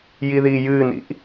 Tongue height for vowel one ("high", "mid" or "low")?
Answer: high